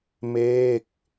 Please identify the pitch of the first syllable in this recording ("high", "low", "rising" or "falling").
falling